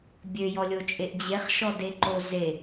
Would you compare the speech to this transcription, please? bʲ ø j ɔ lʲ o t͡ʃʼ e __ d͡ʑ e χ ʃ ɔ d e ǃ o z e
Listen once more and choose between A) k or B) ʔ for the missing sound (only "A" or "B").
B